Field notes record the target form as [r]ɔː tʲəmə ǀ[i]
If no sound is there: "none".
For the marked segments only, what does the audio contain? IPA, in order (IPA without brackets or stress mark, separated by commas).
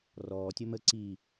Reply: r, i